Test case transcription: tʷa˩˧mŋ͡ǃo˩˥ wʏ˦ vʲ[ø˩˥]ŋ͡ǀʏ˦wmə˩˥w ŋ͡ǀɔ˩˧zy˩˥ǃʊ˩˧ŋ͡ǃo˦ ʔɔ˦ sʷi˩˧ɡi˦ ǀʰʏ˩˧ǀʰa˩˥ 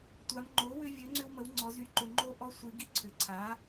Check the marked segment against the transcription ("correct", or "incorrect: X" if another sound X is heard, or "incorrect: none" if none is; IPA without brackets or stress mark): correct